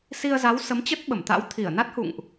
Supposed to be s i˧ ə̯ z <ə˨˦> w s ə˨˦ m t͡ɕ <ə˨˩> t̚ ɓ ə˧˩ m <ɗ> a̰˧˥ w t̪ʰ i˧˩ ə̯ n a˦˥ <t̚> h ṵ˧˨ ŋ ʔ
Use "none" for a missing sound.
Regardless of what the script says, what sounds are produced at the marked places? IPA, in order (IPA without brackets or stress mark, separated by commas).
a˨˦, ə˦˥, t̪, t̚